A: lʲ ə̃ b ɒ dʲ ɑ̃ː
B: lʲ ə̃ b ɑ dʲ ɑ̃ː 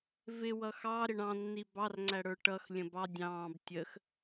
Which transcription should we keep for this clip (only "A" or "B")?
B